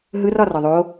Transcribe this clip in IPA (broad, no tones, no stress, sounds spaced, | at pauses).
ɦ ɯ r ɒ r ɒ ðˤ o